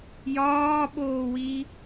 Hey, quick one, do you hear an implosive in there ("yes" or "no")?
yes